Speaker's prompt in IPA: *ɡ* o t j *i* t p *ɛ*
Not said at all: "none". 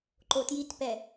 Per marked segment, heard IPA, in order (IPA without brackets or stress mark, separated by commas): ǃ, i, ɛ